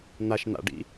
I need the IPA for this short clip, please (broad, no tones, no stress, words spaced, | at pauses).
n̪aʃn̪a̰ɖḭ